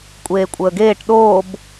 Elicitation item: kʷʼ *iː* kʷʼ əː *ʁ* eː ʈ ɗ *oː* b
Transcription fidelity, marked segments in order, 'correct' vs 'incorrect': incorrect: eː, incorrect: ɡ, correct

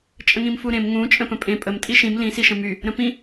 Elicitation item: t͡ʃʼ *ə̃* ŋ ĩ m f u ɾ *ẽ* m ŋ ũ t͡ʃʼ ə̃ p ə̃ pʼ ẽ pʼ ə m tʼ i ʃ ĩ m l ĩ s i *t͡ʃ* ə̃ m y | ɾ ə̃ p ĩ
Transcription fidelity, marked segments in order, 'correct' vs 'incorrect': correct, correct, incorrect: ʃ

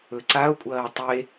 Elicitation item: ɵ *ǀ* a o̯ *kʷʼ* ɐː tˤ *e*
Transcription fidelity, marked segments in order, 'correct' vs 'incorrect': correct, correct, correct

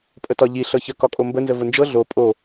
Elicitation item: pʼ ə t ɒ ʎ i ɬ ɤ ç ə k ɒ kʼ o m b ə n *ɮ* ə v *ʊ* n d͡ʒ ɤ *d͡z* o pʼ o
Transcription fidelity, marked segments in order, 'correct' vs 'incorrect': incorrect: z, correct, incorrect: ɮ

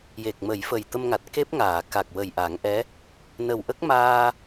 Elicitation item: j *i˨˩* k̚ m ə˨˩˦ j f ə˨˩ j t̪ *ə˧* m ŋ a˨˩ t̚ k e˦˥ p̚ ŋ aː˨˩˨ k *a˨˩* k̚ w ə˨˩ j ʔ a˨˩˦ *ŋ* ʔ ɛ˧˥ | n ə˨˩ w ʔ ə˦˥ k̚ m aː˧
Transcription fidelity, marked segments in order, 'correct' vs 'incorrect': incorrect: e˨˩, correct, correct, correct

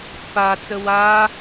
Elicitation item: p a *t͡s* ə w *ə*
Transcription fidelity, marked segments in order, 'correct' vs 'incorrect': correct, incorrect: a

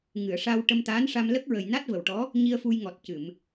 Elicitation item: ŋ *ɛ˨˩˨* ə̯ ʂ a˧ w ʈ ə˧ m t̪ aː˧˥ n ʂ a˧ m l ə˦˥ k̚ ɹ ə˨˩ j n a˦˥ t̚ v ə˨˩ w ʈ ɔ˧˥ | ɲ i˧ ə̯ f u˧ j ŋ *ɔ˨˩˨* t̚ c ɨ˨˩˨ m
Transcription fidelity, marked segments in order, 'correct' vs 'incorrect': incorrect: ɨ˨˩˨, incorrect: ɔ˨˩

